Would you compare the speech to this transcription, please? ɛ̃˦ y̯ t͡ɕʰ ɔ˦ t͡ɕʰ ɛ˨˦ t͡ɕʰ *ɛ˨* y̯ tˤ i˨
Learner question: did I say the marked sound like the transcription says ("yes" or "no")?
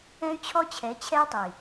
no